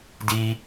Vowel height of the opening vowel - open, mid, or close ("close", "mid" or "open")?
close